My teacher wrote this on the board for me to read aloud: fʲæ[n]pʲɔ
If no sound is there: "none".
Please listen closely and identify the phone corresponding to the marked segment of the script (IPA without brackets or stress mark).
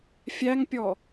ŋ